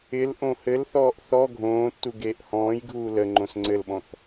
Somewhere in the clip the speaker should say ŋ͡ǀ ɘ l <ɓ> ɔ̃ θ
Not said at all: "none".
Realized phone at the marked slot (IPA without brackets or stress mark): ɓ